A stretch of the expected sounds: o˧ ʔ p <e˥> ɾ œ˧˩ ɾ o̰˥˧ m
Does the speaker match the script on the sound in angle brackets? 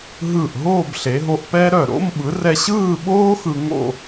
no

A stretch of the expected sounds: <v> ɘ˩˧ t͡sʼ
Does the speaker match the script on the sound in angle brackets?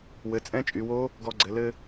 no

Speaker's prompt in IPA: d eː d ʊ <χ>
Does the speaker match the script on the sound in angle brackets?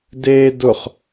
yes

